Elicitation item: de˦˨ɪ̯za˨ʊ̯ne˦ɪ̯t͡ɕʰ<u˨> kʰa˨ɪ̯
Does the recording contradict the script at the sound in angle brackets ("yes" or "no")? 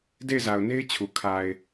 no